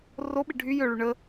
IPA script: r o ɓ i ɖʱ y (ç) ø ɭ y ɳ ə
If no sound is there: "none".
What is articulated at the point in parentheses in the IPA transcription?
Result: j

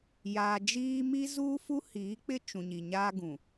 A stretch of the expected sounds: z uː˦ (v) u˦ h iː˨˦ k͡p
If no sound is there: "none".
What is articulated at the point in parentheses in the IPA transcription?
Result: f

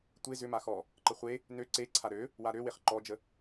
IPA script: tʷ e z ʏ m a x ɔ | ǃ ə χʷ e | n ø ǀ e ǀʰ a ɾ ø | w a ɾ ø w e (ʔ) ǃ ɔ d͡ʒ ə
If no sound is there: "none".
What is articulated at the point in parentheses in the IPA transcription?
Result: χ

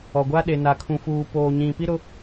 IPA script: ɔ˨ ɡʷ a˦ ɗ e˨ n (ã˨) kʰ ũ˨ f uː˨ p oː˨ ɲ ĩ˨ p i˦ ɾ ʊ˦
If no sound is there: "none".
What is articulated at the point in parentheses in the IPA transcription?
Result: a˨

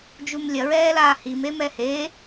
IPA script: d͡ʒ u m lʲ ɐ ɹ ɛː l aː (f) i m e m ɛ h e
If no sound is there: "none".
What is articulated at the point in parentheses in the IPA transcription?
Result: h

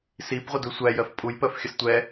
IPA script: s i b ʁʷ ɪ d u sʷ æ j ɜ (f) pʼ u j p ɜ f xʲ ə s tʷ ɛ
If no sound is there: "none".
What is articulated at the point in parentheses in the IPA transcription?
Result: f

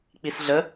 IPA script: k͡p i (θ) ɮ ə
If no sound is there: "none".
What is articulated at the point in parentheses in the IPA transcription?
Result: s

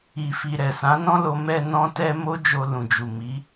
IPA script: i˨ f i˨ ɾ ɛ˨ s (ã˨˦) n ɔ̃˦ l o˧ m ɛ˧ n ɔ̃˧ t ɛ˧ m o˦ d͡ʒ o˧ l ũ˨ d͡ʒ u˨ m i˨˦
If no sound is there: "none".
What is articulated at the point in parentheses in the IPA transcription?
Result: ã˨˦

